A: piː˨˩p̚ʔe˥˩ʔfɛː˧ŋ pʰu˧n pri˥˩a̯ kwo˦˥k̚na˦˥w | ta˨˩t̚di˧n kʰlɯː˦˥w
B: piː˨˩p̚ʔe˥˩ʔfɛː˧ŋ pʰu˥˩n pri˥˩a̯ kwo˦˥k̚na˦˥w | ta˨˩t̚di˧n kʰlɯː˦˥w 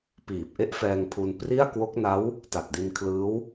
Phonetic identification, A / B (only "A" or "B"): A